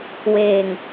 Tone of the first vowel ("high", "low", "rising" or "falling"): low